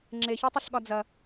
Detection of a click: present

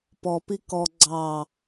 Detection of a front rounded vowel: absent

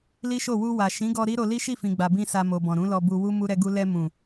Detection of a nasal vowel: present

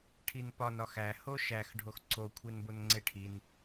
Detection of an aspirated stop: present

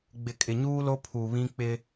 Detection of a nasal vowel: present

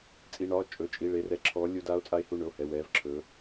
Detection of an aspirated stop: present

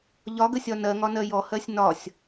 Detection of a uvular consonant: absent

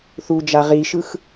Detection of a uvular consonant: present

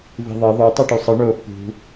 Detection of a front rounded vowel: present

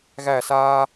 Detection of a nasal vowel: absent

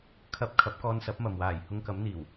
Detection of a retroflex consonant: absent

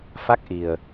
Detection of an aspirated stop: absent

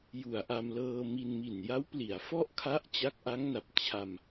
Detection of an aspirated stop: present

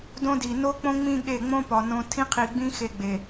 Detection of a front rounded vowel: absent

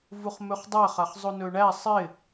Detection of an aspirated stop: absent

